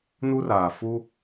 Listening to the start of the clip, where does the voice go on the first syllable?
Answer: high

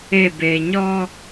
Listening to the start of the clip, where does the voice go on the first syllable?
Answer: falling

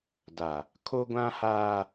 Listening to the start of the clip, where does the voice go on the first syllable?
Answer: low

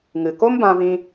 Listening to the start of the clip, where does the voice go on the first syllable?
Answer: low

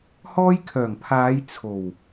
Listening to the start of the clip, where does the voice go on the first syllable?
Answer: high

